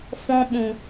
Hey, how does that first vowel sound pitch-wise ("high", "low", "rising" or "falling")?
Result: high